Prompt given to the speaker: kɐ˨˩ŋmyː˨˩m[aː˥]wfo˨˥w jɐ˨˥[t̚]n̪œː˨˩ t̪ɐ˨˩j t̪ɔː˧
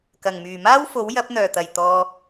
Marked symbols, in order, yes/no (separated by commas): yes, no